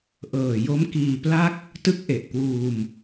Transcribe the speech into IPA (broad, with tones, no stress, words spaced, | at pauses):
ʔɤː˨˩jo˦˥mkiː˧pla˥˩k̚ | tɯ˦˥k̚ʔe˨˩ʔkwuː˧m